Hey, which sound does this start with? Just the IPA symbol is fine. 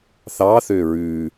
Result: θ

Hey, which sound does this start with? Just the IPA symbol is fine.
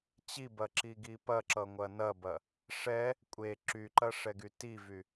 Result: t͡ɕ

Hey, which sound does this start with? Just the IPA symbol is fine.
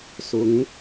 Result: s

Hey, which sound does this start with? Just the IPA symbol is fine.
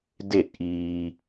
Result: d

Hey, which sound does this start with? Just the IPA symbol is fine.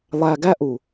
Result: lˠ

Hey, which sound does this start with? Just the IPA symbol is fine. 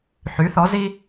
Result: ħ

